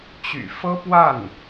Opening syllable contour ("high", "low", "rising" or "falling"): low